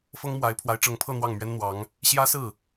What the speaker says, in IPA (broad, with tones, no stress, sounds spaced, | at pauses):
f ɤ˥ ŋ m w a˧˥ ɪ̯ pʰ w a˧˥ ɪ̯ ʈ͡ʂ ɤ˧˥ ŋ pʰ ɤ˥˧ n̪ w ɑ˥˩ ŋ m ɥ ɛ˥ n n̪ w ɑ˧˥ ŋ | ɕ j ä˥ s ɹ̩˥˩